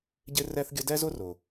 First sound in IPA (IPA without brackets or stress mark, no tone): ɟ